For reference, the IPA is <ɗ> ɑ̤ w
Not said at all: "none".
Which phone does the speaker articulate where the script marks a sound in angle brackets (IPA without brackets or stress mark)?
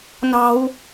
n